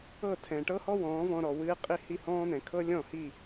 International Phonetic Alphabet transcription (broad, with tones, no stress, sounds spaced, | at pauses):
ɤ˥˩ tʰ ɛ̃˩ ʈ ɤ˥ h ɔ˥ w ɔ̃ː˩˥ v ɔ̃˧ ɾ ɔ˩ w ɨː˧ qʼ i˥ h i˥˩ h ɔ̃ː˥ n̪ ɛ̃˩ kʰ ɤ˥ lʲ ɔ̃˥˩ h i˥˩